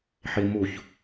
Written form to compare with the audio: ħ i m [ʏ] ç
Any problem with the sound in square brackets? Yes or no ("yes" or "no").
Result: yes